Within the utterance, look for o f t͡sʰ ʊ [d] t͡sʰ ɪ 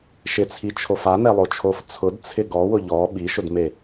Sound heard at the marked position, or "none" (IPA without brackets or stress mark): d